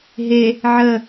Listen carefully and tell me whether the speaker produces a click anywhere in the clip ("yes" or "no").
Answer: no